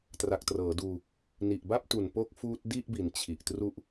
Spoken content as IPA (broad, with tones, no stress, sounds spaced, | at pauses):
t r a˨˩ k̚ t r ɤː˩˦ d uː˧ | n i˨˩ ʔ b a˥˩ p̚ t u˨˩ n p o˦˥ k̚ f uː˦˥ t̚ d i˥˩ ʔ b i˩˦ n t͡ɕʰ i˨˩ ʔ t r u˥˩ ʔ